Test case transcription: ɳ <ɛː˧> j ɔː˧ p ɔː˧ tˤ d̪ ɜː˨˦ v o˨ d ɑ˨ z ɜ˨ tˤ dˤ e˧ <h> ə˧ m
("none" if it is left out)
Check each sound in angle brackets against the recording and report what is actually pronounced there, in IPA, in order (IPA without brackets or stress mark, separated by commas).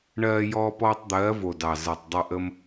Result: ɜː˧, ʔ